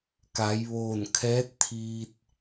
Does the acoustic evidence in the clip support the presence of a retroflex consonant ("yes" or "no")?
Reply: no